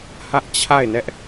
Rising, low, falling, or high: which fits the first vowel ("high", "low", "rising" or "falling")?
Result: high